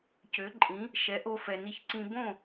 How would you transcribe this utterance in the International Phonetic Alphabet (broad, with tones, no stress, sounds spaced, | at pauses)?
c ø˩˥ ǃʼ ĩ˩˥ | ʃ ɛ˩˥ ʔ o˧ f ɛ˩ n i˧ ç ǀ ĩ˧ b õ˥˩